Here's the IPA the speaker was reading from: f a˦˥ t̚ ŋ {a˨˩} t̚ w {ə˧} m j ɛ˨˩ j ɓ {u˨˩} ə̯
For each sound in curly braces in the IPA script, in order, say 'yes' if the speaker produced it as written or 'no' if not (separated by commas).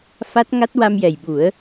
no, no, no